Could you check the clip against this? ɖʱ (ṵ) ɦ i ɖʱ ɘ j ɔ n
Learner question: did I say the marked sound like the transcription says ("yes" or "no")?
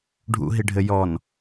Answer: yes